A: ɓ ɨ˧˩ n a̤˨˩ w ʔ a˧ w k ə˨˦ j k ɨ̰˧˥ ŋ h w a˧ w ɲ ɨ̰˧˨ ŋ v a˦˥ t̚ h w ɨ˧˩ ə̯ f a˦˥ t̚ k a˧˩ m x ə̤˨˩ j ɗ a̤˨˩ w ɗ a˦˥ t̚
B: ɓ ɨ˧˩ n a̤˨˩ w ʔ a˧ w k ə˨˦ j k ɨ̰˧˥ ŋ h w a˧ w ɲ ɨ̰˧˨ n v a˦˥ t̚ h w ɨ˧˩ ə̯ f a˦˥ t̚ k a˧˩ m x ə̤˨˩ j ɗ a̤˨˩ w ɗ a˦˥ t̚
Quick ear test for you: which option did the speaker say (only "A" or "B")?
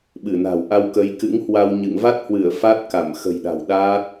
A